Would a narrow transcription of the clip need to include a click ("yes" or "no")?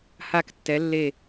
no